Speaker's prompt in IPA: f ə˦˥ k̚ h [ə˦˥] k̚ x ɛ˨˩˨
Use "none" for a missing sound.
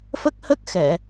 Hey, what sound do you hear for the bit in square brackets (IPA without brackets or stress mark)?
ə˦˥